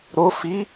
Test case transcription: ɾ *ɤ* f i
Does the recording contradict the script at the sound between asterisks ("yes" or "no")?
yes